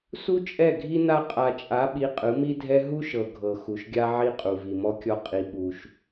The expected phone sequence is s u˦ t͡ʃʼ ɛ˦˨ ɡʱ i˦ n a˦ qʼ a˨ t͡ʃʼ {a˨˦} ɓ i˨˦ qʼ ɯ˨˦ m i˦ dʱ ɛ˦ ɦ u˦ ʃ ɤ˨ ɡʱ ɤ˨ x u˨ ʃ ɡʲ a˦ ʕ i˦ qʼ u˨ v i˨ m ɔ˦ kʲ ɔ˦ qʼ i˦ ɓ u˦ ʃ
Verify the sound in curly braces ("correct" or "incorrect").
correct